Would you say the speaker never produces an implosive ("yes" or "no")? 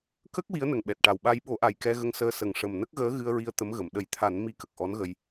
no